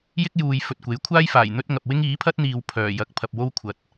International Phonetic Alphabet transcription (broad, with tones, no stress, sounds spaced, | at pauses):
j ɪ˥ k̚ j uː˨ j f ɵ˧ t̚ kʷ e˨˥ j kʷʰ aː˥ j f aː˨˩ j n̪ ɵ˥ t̚ ŋ ɐ˨ p̚ w ɪ˥ ŋ iː˨˥ pʰ ɐ˥ t̚ n̪ iː˨ w pʰ œː˨˩ j ɐ˨˥ k̚ pʰ ɐ˨ p̚ w o˥ w kʷʰ ɐ˨ t̚